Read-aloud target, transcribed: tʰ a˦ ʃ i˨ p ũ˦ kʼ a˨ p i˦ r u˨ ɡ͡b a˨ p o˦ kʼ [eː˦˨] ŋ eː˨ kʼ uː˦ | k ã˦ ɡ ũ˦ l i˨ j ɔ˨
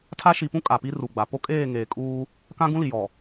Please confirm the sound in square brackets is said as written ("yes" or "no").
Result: yes